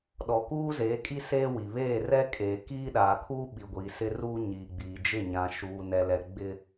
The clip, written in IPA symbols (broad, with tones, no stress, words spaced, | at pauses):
ɗɔ˨kuː˦zeː˨˦kʼi˦ seː˦wi˨ βeː˦˨rɛ˦kʼeː˨ kiː˦ɗaː˨kʰuː˦ ɓi˨ɡʷiː˨sɪ˦ruː˦ ɲiː˨ɡ͡biː˨d͡ʒɪ˦˨ ɲã˨ʃuː˨nɛ˨lɛ˨ ɡ͡bɪ˦